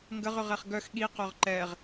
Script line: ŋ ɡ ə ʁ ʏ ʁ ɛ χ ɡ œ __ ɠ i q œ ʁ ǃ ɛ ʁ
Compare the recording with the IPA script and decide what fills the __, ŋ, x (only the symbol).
x